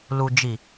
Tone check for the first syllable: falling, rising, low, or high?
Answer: low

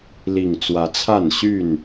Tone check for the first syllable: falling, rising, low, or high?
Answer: low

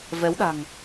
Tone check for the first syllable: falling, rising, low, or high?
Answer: rising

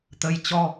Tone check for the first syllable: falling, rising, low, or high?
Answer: rising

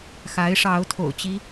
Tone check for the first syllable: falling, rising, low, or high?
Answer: rising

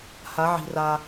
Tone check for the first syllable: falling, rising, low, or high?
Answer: rising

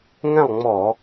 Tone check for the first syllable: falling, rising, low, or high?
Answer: falling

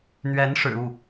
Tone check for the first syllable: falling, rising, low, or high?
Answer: rising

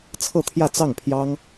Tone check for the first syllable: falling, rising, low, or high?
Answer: falling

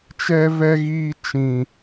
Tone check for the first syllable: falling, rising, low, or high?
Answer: high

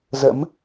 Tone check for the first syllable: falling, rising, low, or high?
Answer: rising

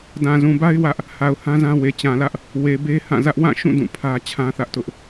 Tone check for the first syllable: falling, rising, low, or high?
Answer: low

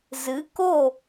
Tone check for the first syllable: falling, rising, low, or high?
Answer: rising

